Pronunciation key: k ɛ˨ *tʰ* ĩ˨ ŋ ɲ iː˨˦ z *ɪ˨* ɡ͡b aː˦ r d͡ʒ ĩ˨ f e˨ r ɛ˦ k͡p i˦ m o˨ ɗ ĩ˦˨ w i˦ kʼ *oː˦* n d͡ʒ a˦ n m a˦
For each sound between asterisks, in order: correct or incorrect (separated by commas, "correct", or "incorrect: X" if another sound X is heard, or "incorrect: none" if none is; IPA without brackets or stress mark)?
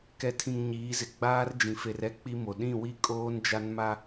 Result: correct, correct, correct